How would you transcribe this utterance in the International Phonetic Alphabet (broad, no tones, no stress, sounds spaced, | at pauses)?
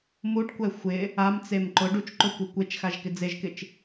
m u ʈ kʷ ɛ xʷ ɪ | a m t͡s e m ǃ ʊ ɖ u t͡ʃ ǃ o kʷ e kʷ e t͡ʃ x a ʒ k ɪ d͡z e ʒ k ɪ t͡ʃ